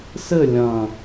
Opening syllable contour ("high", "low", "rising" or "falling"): falling